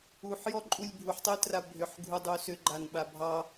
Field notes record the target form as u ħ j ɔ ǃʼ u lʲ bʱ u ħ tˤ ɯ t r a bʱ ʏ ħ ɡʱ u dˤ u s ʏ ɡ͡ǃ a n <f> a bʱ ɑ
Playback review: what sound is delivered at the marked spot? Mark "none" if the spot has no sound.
ɓ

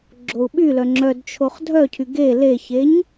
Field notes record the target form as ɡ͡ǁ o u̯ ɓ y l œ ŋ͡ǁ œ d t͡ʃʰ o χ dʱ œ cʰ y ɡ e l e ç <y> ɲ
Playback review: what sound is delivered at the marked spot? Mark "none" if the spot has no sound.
e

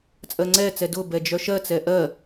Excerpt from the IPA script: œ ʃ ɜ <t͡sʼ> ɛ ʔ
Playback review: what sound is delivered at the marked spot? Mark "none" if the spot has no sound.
t͡s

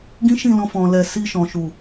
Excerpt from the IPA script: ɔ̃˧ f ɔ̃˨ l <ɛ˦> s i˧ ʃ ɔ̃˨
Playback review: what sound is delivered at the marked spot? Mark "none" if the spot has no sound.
ɛ˨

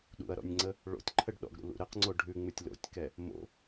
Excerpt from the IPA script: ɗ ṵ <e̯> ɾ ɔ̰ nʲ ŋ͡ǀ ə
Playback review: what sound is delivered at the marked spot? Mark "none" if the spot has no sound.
ɐ̯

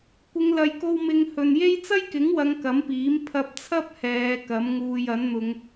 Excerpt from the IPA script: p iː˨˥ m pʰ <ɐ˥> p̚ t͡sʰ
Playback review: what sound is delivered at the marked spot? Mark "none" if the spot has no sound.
ɐ˧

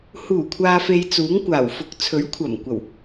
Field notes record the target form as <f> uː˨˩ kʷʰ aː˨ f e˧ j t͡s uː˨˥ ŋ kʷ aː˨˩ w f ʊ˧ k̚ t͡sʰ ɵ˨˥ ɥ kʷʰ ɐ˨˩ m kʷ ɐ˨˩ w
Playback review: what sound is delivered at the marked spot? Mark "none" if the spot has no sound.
h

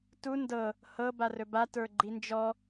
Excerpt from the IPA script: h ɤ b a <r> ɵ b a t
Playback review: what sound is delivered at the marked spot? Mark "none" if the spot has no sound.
r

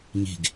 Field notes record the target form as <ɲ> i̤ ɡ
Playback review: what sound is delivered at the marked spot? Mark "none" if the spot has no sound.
ɲ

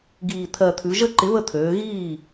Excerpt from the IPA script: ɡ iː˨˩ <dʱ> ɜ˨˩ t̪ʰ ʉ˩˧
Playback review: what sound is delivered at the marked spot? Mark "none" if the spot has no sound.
t̪ʰ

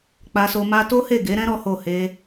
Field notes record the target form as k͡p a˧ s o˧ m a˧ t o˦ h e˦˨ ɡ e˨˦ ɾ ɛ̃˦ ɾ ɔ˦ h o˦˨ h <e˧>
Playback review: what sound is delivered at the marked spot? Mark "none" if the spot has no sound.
e˧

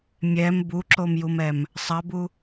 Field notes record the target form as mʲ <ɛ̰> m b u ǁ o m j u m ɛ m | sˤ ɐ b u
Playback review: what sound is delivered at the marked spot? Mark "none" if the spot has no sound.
ɛ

